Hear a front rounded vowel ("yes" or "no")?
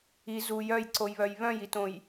yes